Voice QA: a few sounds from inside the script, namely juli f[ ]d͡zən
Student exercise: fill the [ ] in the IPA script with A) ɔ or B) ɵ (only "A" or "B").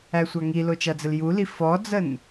A